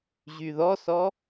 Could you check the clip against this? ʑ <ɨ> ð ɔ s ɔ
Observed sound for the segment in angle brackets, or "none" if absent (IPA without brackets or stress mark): y